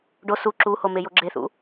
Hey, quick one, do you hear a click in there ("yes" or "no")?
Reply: yes